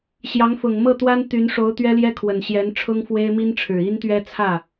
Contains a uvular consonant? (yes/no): no